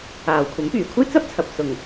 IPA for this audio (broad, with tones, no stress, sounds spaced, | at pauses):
aː˨ w kʷʰ ɐ˨˥ m p yː˨˩ kʷʰ ɐ˥ j t͡s ɐ˥ p̚ t͡sʰ ɐ˨ p̚ s ʊ˨˩ ŋ